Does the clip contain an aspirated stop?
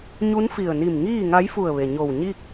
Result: no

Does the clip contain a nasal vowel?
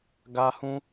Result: yes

